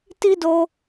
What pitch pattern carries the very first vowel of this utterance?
high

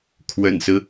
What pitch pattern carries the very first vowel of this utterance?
low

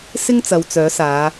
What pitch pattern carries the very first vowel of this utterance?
high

